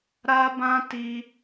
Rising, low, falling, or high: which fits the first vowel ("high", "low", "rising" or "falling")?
high